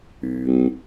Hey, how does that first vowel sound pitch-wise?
low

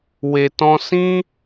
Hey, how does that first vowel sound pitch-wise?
low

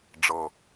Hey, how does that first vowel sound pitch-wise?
low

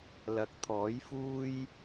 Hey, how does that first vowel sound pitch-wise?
low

